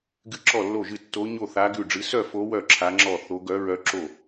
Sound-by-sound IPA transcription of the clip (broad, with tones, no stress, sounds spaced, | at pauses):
ɡ ɨ˥˧ ǁ ɔ˥˧ lː o˥˧ ʒ ɨ˥˧ tː o˦˥ ɲ o˥˧ θ a˦˥ ɡ ʉ˥˧ ɖ͡ʐ ɨ˦˥ s œ˥˧ f o˦˥ w œ˥˧ ǁʰ a˦˥ ŋ͡ǁ ɔ˥˧ θ o˦˥ ɡ œ˦˥ ɹ œ˦˥ ǁ o˥˧